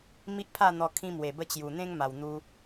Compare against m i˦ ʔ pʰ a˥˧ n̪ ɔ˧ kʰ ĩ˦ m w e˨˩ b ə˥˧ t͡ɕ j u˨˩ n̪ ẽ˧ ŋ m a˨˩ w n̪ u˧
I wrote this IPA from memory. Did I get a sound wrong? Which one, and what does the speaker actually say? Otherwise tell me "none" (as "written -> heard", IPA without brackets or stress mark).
ẽ˧ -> ẽ˦